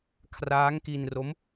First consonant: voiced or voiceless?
voiceless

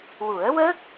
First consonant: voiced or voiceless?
voiced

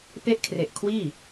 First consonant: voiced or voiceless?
voiceless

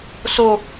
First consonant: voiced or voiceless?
voiceless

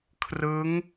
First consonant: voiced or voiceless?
voiceless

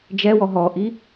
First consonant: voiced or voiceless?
voiced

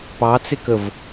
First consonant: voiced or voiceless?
voiceless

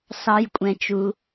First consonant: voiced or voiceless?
voiceless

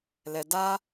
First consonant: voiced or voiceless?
voiced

